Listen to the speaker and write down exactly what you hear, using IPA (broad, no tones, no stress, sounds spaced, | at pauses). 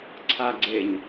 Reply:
ǀʰ a ɡ͡ǀ e ɲ